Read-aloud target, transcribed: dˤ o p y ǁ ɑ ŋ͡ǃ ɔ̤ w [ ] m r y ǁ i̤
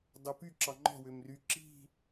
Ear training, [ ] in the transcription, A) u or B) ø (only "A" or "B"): B